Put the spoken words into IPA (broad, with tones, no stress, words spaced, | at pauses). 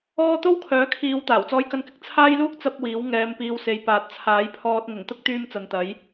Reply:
ɔː˥ t̪o˥wkʰœː˨˥kʰiː˨˧w t̪aː˨˩wt͡sɔː˧jkɐ˧nkɪ˧k̚ t͡sʰaː˥jluː˥k̚ t͡sɐ˨p̚ wiː˨˥w ŋɛː˧mpiː˧w se˨jpaː˨˥t̚t͡sʰaː˨˥jpʰɔː˧t̚ ŋʊ˨˩ŋt̪ʊ˥k̚t̪yː˧m t͡sɐ˨nt̪ɐ˨˥j